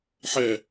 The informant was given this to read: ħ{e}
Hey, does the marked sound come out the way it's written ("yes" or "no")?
no